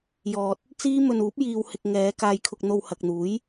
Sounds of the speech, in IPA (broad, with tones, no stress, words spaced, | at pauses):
jɔː˨t̚ | t͡siː˥mɵ˧n uː˨˥p̚ jiː˨whɪ˨k̚ ŋɛː˨˧ kaː˧jkʰʊ˧k̚n̪o˧w hɐ˨k̚n̪uː˨˥j